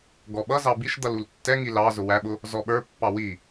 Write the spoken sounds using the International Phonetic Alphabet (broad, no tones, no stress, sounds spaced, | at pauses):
ɡ ɔ ɓ ʌ z ɑ b i ʃ d̪ ʌ l u l tː ɛ ŋ i l ɑ z ʊ w æ ɓ ʊ | z ɔ ɓ ə˞ pː ɑ w i